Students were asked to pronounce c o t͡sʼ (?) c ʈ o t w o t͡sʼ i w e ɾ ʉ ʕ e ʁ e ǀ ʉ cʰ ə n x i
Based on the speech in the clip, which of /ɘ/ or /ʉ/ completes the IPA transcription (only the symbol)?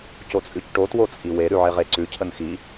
ʉ